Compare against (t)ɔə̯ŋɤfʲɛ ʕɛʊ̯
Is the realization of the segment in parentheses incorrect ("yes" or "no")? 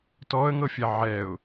no